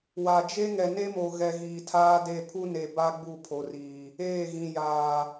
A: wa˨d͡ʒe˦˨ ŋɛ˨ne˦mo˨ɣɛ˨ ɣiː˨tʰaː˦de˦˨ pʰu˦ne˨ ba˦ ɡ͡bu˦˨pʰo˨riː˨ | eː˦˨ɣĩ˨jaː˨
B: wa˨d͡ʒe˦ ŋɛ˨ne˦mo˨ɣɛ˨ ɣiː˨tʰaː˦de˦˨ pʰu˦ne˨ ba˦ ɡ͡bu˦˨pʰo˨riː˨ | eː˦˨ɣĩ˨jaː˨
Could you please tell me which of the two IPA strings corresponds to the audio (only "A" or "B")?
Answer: B